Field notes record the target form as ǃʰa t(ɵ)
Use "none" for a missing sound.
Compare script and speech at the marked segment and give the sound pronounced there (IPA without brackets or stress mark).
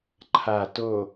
o